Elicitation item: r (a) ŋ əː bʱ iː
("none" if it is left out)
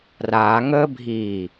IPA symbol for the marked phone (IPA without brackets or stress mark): aː